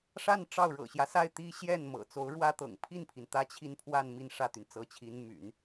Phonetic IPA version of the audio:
ʂa˥˧n ʈ͡ʂɑ˥˩ʊ̯ɻɤ̰˨˩ɕjä˦ sa˥˩ɪ̯t̪i˥ɕjɛ˥˩n mɤ̰˨˩t͡so˧˥ʊ̯ɻwä˥t̪ɤ̰˨˩ŋ pʰi˥˩npʰi˩n t̪ä˥t͡ɕʰi˥˧npʰwa˥˧n mi˥˧nʂä˥˩t̪y˩n t͡sɤ˧˥t͡ɕʰi˧˥n my̰˨˩˦n

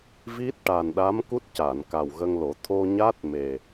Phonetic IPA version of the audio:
vi˦˥t̚ʈa˨˩nɗa˧˥mku˦˥t̚ ca˨˩˨nka˨˩wɣə˧ŋlo˨˩˦ t̪ʰo˧ɲa˦˥t̚ me˨˩

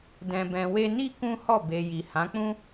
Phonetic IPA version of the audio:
dɛ̃˨bɛ̃˨we˧ni˦ kũ˦hɔ˦˨be˨ji˨ hã˨˦k͡pũ˦

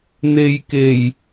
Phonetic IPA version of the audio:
n̪e˨j ke˨˩j

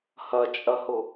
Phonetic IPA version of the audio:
hɐt͡ʃʼɐhʊ

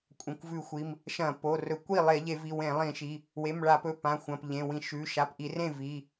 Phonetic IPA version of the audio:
kʷʼɐ̃˩˧˩kʷvʉ˧˩˧xʷi˩˧˩m | ʃɐ̃˧˩˧ po˩˧˩rɵ˧˩˧ kʷi˥˩ lˠe˧˩˧ʎe˧˩˧vi˩˧˩ wẽ˧˩˧lˠĩ˧˩˧ʃi˩˧˩ | we˩˧˩mɭa˧˩˧pɵ˩˧˩ pã˩˧˩xʷɐ̃˩˧˩p ʎẽ˩˧˩wĩ˧˩˧ʃʉ˩˧˩ ʃa˩˧˩pʔi˧˩˧rẽ˥˩ vi˩˧˩

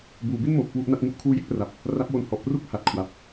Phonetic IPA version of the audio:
buː˩˦bi˥˩nmoː˨˩p̚ kwu˦˥ʔna˥˩t̚ ŋu˥˩ʔkʰuː˦˥ je˥˩k̚pra˨˩p̚ | ra˦˥p̚wo˧n hɔ˨˩ʔpru˥˩k̚ ha˨˩t̚kʰwa˨˩p̚

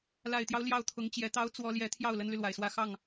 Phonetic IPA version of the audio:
la˨˩ɪ̯t̪jɑ˦ʊ̯ ljɑ˥˩ʊ̯t̪ʰʊ˧˥ŋ t͡ɕjɛ˧˥t̪ɑ˥ʊ̯ t͡swɔ˥ ljɛ˧˥t̪ʰjɑ˥˩ʊ̯ lə˥nly˨lwa˨˩ɪ̯swä˥˧ xɑ˥˩ŋ

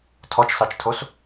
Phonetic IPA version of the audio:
tʰɔt͡ʃsɑt͡ʃtʰos

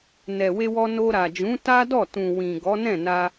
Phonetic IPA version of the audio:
nɛ˨we˧wɔ˧ no˧ɾa˨d͡ʒũ˨˦ ta˦dɔ˦˨tũ˨ wĩ˨ ɡɔ˨˦nɛ̃˦˨na˧

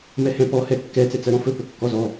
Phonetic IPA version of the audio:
mɛhɛ̃pɔ hɛkːɛ t͡sɛt͡sɜɾɔ̃fɵ pɵkːɔzɔ

